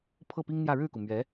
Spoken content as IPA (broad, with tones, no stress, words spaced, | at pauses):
pʰɤ˥˩pi˥ŋn̪jä˥˧ ɻɻ̩˥˩ku˩mɥɛ˧˥